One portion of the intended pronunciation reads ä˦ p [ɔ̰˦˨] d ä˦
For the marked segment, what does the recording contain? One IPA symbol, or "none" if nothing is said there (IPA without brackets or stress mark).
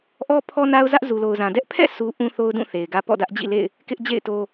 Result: ɔ̰˦˨